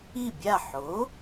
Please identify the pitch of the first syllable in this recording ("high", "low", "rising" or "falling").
falling